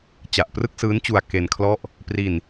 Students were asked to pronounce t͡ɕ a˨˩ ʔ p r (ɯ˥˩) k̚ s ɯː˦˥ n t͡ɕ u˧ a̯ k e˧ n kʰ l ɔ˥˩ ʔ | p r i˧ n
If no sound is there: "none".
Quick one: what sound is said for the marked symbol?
ɯ˥˩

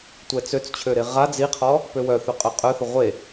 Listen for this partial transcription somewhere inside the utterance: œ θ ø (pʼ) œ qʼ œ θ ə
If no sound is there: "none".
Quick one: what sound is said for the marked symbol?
qʼ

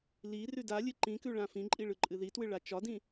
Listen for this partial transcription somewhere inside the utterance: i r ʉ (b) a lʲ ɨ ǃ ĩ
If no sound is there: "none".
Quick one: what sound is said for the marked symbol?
d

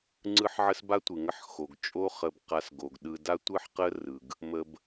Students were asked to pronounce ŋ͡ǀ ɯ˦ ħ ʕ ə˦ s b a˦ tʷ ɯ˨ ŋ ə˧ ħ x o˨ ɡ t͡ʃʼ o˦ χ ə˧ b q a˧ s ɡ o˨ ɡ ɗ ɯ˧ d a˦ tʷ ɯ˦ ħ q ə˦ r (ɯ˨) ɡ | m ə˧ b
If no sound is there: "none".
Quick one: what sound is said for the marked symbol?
ɯ˨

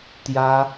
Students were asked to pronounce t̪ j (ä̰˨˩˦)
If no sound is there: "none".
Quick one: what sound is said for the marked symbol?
ä˥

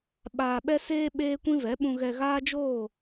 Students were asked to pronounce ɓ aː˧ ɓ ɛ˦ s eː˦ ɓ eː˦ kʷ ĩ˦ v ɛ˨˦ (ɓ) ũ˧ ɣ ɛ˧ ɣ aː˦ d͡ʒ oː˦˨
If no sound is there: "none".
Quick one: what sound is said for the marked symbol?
ɓ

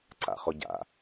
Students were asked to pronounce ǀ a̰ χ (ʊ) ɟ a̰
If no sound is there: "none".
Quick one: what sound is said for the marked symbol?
ʊ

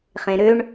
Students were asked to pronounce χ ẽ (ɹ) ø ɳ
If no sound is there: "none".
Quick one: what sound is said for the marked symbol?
ɾ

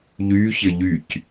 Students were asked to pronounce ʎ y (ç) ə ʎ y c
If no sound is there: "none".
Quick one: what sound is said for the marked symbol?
ç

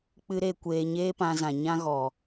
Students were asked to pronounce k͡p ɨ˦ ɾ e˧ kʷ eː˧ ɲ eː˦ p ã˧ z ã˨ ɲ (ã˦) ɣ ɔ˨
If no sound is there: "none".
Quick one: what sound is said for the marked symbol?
ã˦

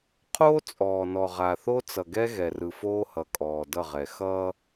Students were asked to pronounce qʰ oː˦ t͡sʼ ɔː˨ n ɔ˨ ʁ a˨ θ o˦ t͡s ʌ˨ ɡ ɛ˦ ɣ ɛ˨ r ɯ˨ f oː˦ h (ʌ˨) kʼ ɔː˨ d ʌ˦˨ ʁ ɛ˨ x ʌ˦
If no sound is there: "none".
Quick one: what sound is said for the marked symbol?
ʌ˨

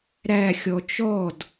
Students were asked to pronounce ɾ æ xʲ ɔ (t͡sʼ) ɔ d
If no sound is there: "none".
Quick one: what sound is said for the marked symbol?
t͡ʃ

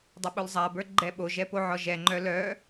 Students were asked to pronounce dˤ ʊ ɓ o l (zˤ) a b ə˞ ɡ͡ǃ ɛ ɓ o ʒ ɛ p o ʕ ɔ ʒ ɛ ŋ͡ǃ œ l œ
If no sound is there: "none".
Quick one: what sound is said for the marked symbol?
zˤ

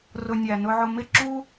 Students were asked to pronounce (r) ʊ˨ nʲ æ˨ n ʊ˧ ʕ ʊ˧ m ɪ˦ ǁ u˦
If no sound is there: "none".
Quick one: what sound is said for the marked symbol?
r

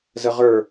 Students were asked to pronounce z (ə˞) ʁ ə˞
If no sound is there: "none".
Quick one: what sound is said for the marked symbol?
ə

